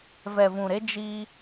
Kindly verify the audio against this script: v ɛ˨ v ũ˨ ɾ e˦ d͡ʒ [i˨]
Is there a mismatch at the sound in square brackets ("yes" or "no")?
yes